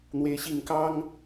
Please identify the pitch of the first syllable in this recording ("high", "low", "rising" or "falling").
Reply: rising